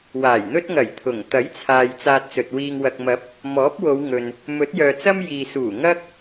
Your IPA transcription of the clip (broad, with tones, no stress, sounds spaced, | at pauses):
w aː˨˩ j n̪ ɵ˥ t̚ ŋ ɐ˨˩ j t̪ʰ ʊ˨˩ ŋ t̪ ɐ˨˥ j t͡sʰ aː˨ j t͡s aː˧ t̚ t͡s ɵ˨ t̚ w iː˧ ŋ w ɐ˨ k̚ m ɐ˨˥ p̚ | m ɔː˨˥ p̚ w o˨˧ w ŋ ɵ˨ n | m ɵ˨˥ t̚ j œː˨ t͡s ɐ˥ m j iː˨ s uː˨˩ ŋ ɐ˥ k̚